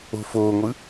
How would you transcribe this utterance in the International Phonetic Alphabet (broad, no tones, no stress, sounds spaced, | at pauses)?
o̤ f oː ŋʷ ɯ